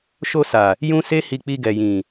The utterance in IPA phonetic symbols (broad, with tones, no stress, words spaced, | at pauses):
ʃo˧sa˨ | jũ˦ se˦hi˧ k͡pi˧ɡɛ˨jĩ˨